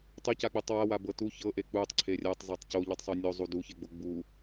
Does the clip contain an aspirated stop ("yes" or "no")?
yes